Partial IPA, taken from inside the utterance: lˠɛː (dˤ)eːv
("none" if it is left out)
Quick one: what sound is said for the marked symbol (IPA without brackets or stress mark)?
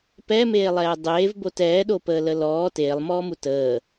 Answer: dˤ